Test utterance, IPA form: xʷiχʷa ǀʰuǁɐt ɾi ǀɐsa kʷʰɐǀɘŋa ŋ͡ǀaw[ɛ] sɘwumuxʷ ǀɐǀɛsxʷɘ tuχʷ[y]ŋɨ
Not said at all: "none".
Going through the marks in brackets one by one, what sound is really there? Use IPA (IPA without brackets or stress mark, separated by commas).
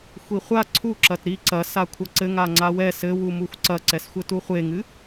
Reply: ɛ, e